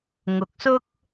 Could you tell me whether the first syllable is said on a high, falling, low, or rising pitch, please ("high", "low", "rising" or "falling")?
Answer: low